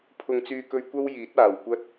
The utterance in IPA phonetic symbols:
pʰ ʊ˧ ŋ t͡s yː˧ k ɵ˧ ɥ kʷ ɐ˥ w j iː˨˥ t̚ aː˨˩ w kʷ ɐ˥ t̚

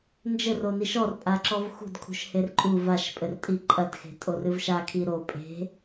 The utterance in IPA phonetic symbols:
n d͡ʒ ɘ r o n i ʃ ɔ r pʼ a ǁ ɔ v x ṳ d kʰ ṳ ʃ h e r ǃʼ u v a ʃ pʼ ɘ r tʼ i ǃʼ ɐ d x e̤ tʼ o r ɨ v ʃ a kʰ i ɾ o pʼ e̤

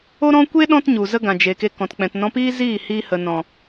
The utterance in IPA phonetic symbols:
o˦ ɾ ɔ̃˦ kʷ e˦ ɗ ɔ̃˦ t ɲ u˨ z ə˦ ɡ ã˨ d͡ʒ e˨ k e˧ k ɔ̃˨ t k͡p ɛ̃˨ t n ɔ̃˧ p iː˦ z iː˦˨ h iː˧ h ə˨ n ɔ̃˨

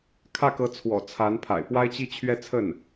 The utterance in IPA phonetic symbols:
kʰ ä˥˩ k ɤ˧˥ t͡sʰ w ɔ̰˨˩ t͡sʰ a˧˥ n pʰ a̰˨˩ ɪ̯ p w a˥ ɪ̯ t͡ɕ i˥˧ t͡ɕʰ ɥ ɛ˥˧ t͡sʰ ə˥˩ n

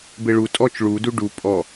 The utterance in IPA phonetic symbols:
b e ɭ u tʼ ɔ t͡ʃ ɭ u d u ɖ u pʼ ɔ

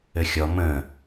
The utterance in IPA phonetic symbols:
ɘ xʲ ɔ m ə̃

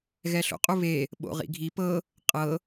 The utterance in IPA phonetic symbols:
ɣ ɛ ɬ o̰ qʼ u β e | ɓ o̰ ʁ ḭ ɡʱ i p ɤ | qʼ ɤ

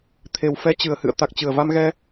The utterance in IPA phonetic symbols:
t̪ʰ e˨˩ w f ɛ˧ t͡ɕ ɨ˧˩ ə̯ h ɨ̰˧˨ ə̯ t̪ a˨˩ k̚ t͡ɕ ɨ˧˩ ə̯ v a˧ m ɣ ɛ˧

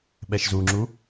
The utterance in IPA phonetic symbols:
ɓ ɛ ʃ z u ŋ͡ǁ u

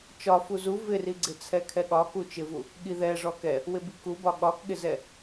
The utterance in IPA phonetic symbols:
t͡ʃ ɒ f u z u v ɪ r i ɡ͡ǀ ɪ t͡sʰ ɛ kʰ ɛ ɠ ɒ k u t͡ʃ ɪ v u | ɠ i ð ɛ ʐ ɔ k ɛ | w ɪ b i k u b ɒ ɠ ɒ k ɠ ɪ z ɛ

